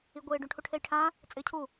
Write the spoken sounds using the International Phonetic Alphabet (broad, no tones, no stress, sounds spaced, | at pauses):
i ɡʷ ɪː ɖ ũ ʈʰ u ʈʰ e j ʈʰ ã | t͡sʼ ɪː cʰ u